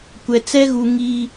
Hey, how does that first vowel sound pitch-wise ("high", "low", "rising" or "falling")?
low